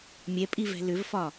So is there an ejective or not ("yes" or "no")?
yes